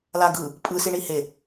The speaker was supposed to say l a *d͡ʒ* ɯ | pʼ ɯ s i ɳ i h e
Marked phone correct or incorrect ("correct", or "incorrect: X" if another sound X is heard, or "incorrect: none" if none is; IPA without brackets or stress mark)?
incorrect: ɡ